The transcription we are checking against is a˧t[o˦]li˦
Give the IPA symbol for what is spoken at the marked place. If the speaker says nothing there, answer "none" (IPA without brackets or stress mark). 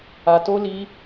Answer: o˦